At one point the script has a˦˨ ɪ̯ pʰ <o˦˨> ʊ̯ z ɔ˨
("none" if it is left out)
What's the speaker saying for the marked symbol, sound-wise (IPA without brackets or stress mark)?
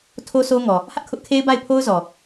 o˦